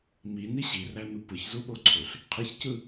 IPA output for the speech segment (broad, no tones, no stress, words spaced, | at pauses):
mini ɕirænu pɯçzuɓoǀʰøɬ | qʰiçcɯ